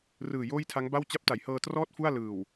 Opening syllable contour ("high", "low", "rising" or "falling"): low